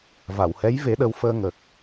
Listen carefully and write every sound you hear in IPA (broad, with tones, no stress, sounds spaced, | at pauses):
v a˨˩˨ w h ɛ˧˥ j v e˧˥ ɗ ə˧˥ w f əː˧ ŋ ə˨˩ k̚